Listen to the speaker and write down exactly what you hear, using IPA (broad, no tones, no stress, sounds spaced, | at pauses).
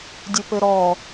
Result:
dʲ ɨ p ɘ ɾ ɔ